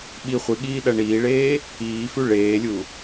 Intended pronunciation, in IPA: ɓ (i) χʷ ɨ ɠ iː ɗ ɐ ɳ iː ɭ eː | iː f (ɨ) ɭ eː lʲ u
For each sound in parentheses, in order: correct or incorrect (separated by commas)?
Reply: correct, incorrect